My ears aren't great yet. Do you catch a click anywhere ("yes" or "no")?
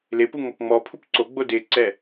yes